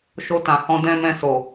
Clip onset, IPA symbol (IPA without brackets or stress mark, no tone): ʃ